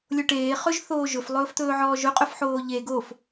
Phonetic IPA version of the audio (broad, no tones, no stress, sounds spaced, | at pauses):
lʲ o ʈ eː χ ɵ ʒ θ oː ʒ ɵ f lˠ ɵː f t̪ ɵː ʕ ɔː ʒ ɵ qʼ ɵ f ħ oː ʎ e ɡ o f